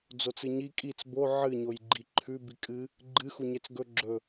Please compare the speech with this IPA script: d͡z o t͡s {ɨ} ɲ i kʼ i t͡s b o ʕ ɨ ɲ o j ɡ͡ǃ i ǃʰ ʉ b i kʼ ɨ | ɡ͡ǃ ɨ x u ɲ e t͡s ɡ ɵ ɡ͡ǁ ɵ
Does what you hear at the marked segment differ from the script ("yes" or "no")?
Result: no